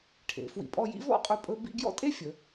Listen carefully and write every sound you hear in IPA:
ʈʰ ḛ˩˧ f w ḭ˧˩ pʼ ɔ˥˧ j ḭ˥ v ɔ̰˥˧ qʼ ɵ˧ pʼ ɵ˧ b ḭ˥˧ ɡ j ɔ̰˥ tʼ e˥ fʲ ə˩˧

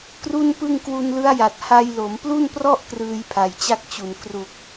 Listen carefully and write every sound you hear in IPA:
k r u˥˩ n p ɯ˥˩ ŋ k w u˧ n l ɯ˦˥ a̯ j a˨˩ t̚ h a˧ j l o˩˦ m p l u˥˩ n p r ɔ˥˩ ʔ k r ɯː˧ j pʰ a˨˩ j t͡ɕ a˥˩ k̚ t͡ɕ u˨˩ n k r u˨˩ k̚

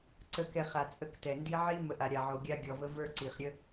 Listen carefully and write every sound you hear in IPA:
ǀ ə˨ k ɛ˨ χ a˨ t͡sʼ ə˦ k t ɛ˨ n d i˦ ʕ i˦ m ə˨˦ ʔ a˨ ɾʲ a˨ ʕ o˨ ɡʲ a˦ ɡʲ ɔ˨ v ə˦ v ə˞˦ ǀ i˨ χ ɾʲ ə˦

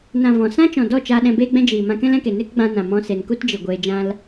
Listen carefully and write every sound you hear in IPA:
n ã˨ v ɔ̃˨ s ã˦ t͡ʃ ɔ̃˨ d ɔ˦˨ t͡ʃ aː˧ ɗ ɛ̃˧ b eː˦ ɡ͡b ɛ̃˦ d͡ʒ iː˨ m ã˧ k ɛ̃˦ l ɛ̃˧ k e˨ n e˦ k ɡ͡b ã˧ n ã˨ m ɔ̃˧ s e˨ n k u˦ t d͡ʒ i˨ ɡʷ eː˧ d͡ʒ ã˦ l

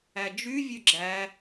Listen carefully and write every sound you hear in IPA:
æ d͡ʒ y vʲ ø ɡ͡ǁ æ

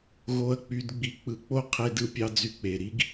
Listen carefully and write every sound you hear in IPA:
ɣ o˧ ɐ̯ k͡p y˧ d ɡ͡b i˧ k͡p ɯ˧ k͡p o˥ qʰ e˧ d ɯ˧ pʲ ɑ˧ d͡z y˧ k͡p e˩ ɾ i˥ ɡ

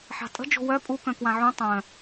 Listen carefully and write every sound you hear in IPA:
ħ a̤ tʼ ə̤ d͡ʒ o̤ w œ pʼ u k œ̃ k w ã ʕ ũ tˤ œ̃

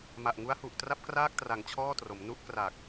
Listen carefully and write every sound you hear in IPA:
m a˨˩ ʔ ŋ u˦˥ a̯ h u˨˩ ʔ t r a˥˩ p̚ k r aː˥˩ k̚ t r a˩˦ ŋ t͡ɕʰ ɔː˥˩ t r o˩˦ m n u˦˥ ʔ k r a˨˩ k̚

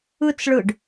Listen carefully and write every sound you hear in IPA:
ɯ t͡s ɭ ɯ ɖ

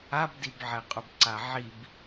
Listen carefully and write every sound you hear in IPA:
a b d i b ʕ ɛ qʼ ʊ b ǀ a ʕ i b

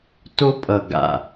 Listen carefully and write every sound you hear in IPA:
t o˦ pʼ ʌ˨ ɡ a̰˨

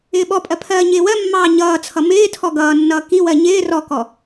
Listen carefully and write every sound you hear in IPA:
ɪː ɓ ɔ pʼ ɜ pʰ ɜː ɲ ɪː w ɜ mː ɑː ɲ ʌː t͡sʰ ʌ m ɪː tʰ ɔ ɡ ʌː nː ʌː k i w ɜ ɲ ɪː r ɔ k ɔ

